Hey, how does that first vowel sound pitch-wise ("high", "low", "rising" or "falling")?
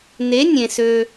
rising